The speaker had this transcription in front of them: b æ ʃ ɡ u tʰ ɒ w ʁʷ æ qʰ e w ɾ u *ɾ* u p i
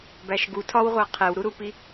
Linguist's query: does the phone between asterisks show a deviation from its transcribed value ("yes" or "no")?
no